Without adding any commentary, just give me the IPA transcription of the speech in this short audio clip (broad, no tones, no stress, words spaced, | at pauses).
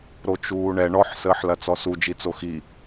ɾot͡ʃuːɳɛ ɳɔħ səːħlɐt͡sɔsu d͡ʒit͡soxi